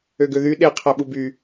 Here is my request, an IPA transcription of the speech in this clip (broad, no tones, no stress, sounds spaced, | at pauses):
ø ɡ ø ð y ɗ e qʰ æ ɓ u b y